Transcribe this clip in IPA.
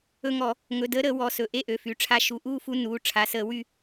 ɵ˦˨ ŋ ɔ˧˩˧ | ŋ ɵ˩˧˩ d əː˨˦ ɾ əː˧˩˧ w ɔ˩˧˩ s ɵ˩˧˩ ʔ e˦˨ ʔ ø˩˧˩ f y˩˧˩ ʈ͡ʂʰ a˦˨ ʃ u˩˧˩ ʔ uː˦˨ f u˨˦ n uː˩˧˩ ʈ͡ʂʰ a˩˧˩ s əː˧˩˧ w y˦˨

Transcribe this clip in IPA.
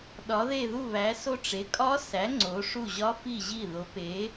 ɗ ɒ˩˥ ð e˥˩ ð u˥˩ β æ˩˥ s o˥˩ ʈ͡ʂ e˩˥ kʼ ɒ˦˥ s æ˩˥ ŋ͡ǀ o˩˥ ʂ u˥˩ ʑ ɒ˦˥ f i˥˩ ʑ i˥˩ ð o˩˥ p e˩˥

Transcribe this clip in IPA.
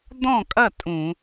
d̪ ɔ̃˥˨ kʼ ɐ˥˨ tʼ ũ˧˩˧

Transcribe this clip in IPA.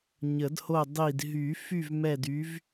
ɲ ə˨˩˦ d h o˦˨ dˤ i˨˩ d ɦ y˨˩˦ f y˦˨ v m ɛ˦˨ d y˨˥ v

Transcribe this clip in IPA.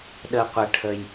ɗ ə˧ qʷ ə˧ ʈʰ ə˧ j

